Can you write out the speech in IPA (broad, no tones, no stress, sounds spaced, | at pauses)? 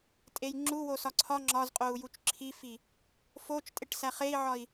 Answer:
tʼ e j ŋ͡ǁ u w o s ɒ ǀʰ ɒ ŋ͡ǁ ɒ z qʼ o u̯ j u t͡ʃ ǁʰ i f i | f o t͡ʃ tʼ e ʈ s æ χ e i̯ ʕ ɒ i̯